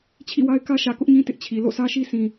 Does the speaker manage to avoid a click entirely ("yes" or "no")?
yes